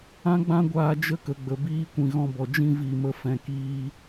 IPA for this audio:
ã˧ ɡ͡b ã˧ ɡʷ aː˧ d͡ʒ ə˦ k ə˨ ɡ͡b ə˨ b iː˦ kʷ ĩ˨ ɣ ɔ̃˧ b ɔ˨ d͡ʒ ĩ˦ v i˦˨ m ə˦ f ɛ̃˧ k iː˦

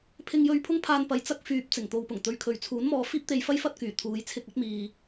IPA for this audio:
pʰ ɪ˧ ŋ j ɵ˧ ɥ pʰ ʊ˥ ŋ pʰ aː˧ n p ɐ˨˥ j t͡s ɐ˥ k̚ f yː˧ p̚ t͡s ɪ˨˩ ŋ t̪ o˨ w p ʊ˨˩ ŋ t̪ ɵ˨˧ ɥ kʰ ɵ˨ ɥ t͡sʰ uː˨˥ n m ɔː˧ f iː˥ p̚ t̪ e˧ j f ɐ˥ j f ɐ˥ t̚ k yː˨˩ t̪ʰ uː˨˧ j t͡sʰ ɪ˧ k̚ ɐ˨˥ t̚ m iː˨

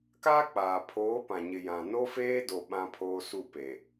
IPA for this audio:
k aː˦ k͡p aː˨ pʰ oː˨˦ p ã˨ ɲ ɪ˨ j ã˨ n o˦ f eː˦ d o˨ ɓ ã˦ pʰ oː˦ s u˦˨ p e˨

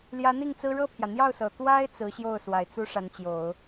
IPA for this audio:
l j ä˧˥ n̪ i˥˩ ŋ t͡s ɹ̩˥ ɻ ɤ˥˩ pʰ j ä˩ n̪ j ɑ˥˩ ʊ̯ s ɤ˨˩ t̪ w a˥ ɪ̯ t͡s ɹ̩˧˥ ɕ j o˥˩ ʊ̯ s w a˨˩ ɪ̯ t͡s u˥ ʂ a˧˥ n t͡ɕ j o˨˩˦ ʊ̯

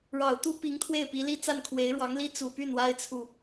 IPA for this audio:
ɻ ɑ˨˩ ʊ̯ t̪ u˥ p i˧˥ ŋ t̪ʰ w e˥˩ ɪ̯ p i˧˥ l i˥ t͡s a˥˩ n kʰ w e˧˥ ɪ̯ ɻ w ɑ˧˥ ŋ l i˥ t͡s u˨˩ p y˥˩ n w a˥ ɪ̯ t͡sʰ u˥˩

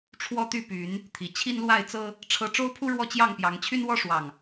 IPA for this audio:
ʈ͡ʂʰ w ɔ˦ t̪ y˥˨ p y˨˦ n | t̪ʰ i˨˩ t͡ɕʰ i˦ n l w a˥˨ ɪ̯ t͡s ɤ˦ | ʈ͡ʂʰ ɤ˦ ʈ͡ʂ o˦ ʊ̯ pʰ u˦ ɻ w ɔ˥˨ t͡ɕ j ɑ˥˨ ŋ p j ɑ˨˦ ŋ t͡ɕʰ y˦ n w ɔ˦ ʂ w ɑ˨˩ ŋ

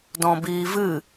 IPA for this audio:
d ɔ̃ b iː v ɨ

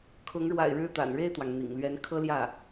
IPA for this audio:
kʰ ʊ˧˥ ŋ ɻ w a̰˨˩ ɪ̯ ɻ ɻ̩˥˩ t̪ a̰˨˩ n ɻ e˥˩ ɪ̯ t̪ w ɑ˩ ŋ n̪ ḭ˨˩ ŋ l ɥ ɛ˧˥ n kʰ ɤ˥ l j ä˥˩

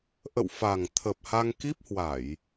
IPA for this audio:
ʔ ə̰˧˨ w f a˨˩ ŋ t̪ʰ ə˨˩ p̚ h a˧ ŋ k i˦˥ p̚ h w a˧˩˨ j

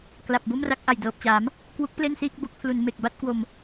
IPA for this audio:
k l a˨˩ p̚ b o˥˩ m r a˦˥ k̚ ʔ a˨˩ j d ɤː˨˩ p̚ t͡ɕ aː˩˦ m | k w u˦˥ k̚ p l e˥˩ n s iː˥˩ k̚ b o˦˥ k̚ pʰ l u˩˦ n m e˨˩ k̚ b a˥˩ t̚ k w o˧ m

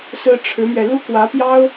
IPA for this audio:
s ɹ̩˥ ʈ͡ʂʰ ɻ̩˧˥ m ɥ ɛ˧ l u˥ k w ä˧˥ p j ɑ˥ ʊ̯

